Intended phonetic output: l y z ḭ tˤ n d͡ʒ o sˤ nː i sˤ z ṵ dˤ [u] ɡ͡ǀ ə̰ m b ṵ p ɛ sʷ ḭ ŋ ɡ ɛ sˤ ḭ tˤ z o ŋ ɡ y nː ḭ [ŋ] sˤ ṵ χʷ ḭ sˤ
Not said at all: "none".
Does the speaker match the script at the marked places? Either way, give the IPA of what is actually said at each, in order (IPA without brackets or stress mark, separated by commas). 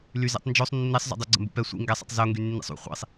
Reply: y, none